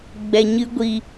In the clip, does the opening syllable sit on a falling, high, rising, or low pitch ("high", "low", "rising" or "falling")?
low